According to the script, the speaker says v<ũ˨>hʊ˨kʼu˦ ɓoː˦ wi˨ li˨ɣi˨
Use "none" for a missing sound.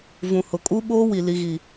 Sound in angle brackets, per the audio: ũ˨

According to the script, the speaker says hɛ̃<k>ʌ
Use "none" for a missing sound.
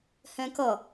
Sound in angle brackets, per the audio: k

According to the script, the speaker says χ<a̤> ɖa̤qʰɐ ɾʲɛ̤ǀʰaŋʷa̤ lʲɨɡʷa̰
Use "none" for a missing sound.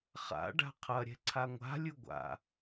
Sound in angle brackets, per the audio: a̰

